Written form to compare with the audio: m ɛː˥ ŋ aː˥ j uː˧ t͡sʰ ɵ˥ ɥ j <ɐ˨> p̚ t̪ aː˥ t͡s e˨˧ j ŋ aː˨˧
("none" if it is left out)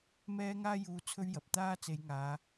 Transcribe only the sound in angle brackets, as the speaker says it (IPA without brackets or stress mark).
ɐ˨